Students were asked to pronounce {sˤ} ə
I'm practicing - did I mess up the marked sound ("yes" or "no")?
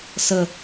yes